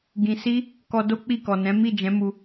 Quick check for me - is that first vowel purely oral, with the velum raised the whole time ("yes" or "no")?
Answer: no